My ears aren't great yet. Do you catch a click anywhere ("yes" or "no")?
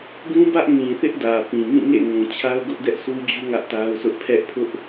no